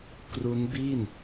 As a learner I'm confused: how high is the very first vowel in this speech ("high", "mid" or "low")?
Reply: high